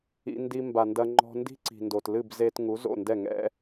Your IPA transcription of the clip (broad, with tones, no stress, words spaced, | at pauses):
ḭ˧ndi˧ mba˨ndɐ˧ ŋ͡ǃɔ̤˧ndi̤˦ǀi̤˨ndo˨t lɨ˦˨b ze˧tŋu˨˦zo̰˦˨ ndɛ˦˨ŋɛ̰˦